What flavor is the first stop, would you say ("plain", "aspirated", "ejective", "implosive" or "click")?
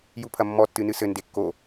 aspirated